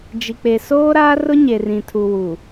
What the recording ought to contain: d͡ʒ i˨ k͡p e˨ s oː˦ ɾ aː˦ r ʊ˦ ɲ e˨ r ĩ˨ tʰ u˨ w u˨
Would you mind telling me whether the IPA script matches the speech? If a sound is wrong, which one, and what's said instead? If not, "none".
none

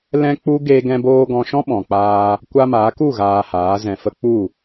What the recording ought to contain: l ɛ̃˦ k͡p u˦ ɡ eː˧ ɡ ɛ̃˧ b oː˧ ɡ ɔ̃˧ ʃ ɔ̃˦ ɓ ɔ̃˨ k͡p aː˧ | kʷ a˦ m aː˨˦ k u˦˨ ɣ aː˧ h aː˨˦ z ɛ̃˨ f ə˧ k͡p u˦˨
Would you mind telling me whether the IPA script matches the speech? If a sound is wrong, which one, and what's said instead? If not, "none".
none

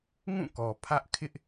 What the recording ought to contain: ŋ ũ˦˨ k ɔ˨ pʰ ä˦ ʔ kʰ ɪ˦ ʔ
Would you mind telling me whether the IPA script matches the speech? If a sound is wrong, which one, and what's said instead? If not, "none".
none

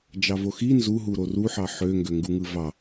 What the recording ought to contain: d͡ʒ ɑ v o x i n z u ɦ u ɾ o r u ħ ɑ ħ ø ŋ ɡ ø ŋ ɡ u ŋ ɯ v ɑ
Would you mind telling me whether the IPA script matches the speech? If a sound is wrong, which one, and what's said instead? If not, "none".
none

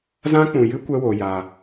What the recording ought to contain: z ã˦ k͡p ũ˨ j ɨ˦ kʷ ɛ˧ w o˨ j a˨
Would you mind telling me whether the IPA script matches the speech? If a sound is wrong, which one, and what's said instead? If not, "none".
none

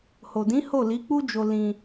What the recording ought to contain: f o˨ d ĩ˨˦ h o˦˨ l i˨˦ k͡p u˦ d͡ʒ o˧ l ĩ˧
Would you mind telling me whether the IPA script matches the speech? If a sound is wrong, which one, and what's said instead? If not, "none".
f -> h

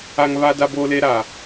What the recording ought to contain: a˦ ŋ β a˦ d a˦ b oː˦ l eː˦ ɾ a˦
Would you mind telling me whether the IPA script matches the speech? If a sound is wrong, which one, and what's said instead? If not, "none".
none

